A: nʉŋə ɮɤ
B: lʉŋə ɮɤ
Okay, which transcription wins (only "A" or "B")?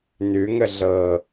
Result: A